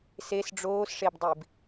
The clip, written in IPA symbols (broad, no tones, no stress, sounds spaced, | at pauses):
s e s ɖ͡ʐ oː s ʂ e b dˤ i b